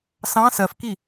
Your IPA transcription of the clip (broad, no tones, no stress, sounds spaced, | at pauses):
s ɑ̃ s ɜ f k i